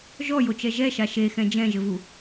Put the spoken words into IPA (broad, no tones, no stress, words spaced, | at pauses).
ʒɔjot͡ʃɛ ʒɛʃa ʃexɛ̃ d͡ʒɛ̃ʒɘvu